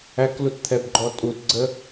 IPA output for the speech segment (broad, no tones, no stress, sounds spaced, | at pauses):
æ k l u t t̪ʰ ɛ b ɡ͡ǃ ɔ tʼ u t ɡ͡ǀ ə